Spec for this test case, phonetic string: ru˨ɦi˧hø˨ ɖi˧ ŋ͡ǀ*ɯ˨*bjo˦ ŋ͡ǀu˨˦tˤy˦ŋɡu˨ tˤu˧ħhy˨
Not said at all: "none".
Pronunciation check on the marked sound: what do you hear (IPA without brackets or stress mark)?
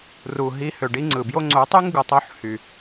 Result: ɯ˨